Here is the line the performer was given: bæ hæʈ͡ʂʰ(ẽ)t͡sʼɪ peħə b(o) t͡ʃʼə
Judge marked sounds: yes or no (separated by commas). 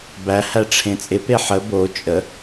yes, yes